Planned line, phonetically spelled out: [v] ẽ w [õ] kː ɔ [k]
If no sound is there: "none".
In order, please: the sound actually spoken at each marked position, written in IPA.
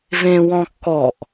v, ɔ̃, ʔ

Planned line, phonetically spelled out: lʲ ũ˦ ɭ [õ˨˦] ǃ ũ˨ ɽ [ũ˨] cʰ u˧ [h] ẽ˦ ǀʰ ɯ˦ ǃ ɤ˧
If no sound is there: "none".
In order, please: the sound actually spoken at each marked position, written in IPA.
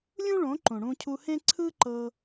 õ˨˦, ũ˧, h

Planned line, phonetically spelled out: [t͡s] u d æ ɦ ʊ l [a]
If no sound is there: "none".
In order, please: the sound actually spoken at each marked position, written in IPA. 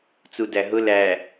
t͡s, æ

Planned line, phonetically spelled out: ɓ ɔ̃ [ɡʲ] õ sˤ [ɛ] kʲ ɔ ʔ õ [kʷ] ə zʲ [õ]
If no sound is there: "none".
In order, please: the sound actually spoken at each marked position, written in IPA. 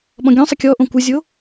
ɡʲ, ə, kʷ, o

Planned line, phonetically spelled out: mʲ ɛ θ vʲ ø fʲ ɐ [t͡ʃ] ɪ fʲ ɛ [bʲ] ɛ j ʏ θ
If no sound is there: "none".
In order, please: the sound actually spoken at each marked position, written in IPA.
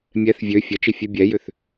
t͡ʃ, bʲ

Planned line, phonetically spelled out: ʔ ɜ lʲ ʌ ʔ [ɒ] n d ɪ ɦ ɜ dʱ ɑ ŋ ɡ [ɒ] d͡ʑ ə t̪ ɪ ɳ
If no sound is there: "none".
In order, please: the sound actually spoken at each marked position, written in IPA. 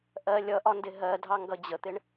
ɒ, ʌ

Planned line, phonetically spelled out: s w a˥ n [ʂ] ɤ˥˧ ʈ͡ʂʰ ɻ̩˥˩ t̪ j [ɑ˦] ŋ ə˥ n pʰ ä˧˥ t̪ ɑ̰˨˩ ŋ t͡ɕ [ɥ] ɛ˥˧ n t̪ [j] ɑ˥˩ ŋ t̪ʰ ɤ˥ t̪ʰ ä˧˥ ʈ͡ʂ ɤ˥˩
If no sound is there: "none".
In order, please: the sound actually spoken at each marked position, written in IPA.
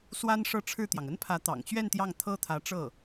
ʂ, ɑ˩, ɥ, j

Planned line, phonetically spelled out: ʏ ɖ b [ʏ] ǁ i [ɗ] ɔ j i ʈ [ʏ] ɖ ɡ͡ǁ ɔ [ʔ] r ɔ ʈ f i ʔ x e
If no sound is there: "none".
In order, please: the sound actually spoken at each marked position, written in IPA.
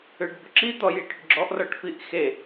ʏ, t̪, ʏ, ʔ

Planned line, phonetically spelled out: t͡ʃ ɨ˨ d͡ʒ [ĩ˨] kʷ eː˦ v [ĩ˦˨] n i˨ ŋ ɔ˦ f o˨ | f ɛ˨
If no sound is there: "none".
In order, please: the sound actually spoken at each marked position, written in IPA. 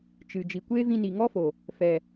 i˨, ĩ˧

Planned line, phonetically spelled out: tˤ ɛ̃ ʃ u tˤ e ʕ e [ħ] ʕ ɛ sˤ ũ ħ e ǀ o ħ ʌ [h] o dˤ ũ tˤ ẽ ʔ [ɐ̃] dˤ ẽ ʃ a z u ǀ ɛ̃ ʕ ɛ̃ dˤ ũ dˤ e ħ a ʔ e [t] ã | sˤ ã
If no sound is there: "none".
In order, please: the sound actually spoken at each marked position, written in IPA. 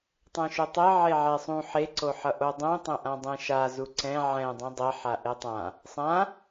none, ʔ, ã, tˤ

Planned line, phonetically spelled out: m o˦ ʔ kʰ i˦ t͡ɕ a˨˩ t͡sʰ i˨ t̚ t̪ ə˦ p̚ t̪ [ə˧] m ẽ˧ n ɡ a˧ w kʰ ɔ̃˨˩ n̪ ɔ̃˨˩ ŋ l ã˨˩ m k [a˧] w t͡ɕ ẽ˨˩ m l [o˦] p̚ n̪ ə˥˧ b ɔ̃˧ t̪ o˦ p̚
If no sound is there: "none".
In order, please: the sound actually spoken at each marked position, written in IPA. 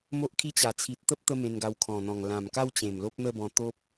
ə˧, a˥˧, o˦

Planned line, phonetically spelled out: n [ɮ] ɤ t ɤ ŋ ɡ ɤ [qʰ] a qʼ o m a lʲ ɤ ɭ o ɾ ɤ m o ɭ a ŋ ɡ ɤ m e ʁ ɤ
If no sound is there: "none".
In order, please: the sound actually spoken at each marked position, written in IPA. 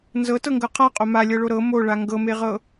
z, qʰ

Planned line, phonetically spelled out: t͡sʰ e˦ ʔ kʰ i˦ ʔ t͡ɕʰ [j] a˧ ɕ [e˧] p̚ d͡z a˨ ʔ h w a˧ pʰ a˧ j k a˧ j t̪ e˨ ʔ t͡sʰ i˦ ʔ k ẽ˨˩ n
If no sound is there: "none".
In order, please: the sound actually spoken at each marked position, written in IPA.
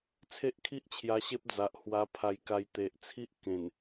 j, e˦

